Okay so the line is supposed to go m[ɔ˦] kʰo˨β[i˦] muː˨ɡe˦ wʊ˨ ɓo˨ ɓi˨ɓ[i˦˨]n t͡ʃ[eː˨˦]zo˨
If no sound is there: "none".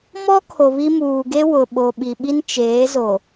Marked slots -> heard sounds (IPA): ɔ˦, i˦, i˦, eː˨˦

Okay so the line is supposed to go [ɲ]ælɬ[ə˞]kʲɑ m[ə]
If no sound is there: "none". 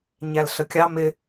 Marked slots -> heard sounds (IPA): ɲ, ə, ɪ

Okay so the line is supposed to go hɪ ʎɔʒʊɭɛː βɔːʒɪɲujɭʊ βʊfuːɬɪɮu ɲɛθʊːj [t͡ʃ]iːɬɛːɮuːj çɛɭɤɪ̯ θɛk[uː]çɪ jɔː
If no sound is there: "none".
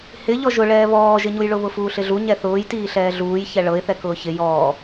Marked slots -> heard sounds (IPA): t, ʊː

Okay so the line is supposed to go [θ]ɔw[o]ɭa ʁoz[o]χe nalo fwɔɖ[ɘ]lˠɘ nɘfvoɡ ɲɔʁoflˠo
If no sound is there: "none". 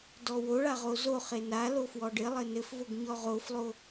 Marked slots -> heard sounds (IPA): d, o, o, ɘ

